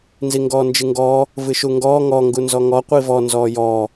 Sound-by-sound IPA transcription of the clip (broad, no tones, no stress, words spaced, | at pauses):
nziŋɡɔːnd͡ʒɨŋɡɔː | vɨʃuŋɡɔː ŋɔ ŋɡunzɔŋɔ qʷivɔ nzɔːjɔː